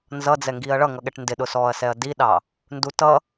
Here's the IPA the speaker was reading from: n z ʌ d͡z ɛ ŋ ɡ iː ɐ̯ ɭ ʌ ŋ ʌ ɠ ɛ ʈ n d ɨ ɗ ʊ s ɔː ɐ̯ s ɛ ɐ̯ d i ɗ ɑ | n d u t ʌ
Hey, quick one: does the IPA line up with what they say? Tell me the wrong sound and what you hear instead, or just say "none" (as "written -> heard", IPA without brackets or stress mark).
ɨ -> ɪ